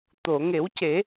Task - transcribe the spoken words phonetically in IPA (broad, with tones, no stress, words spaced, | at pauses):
t̪o˨˩˨ŋe˨˩˦wce˨˩˦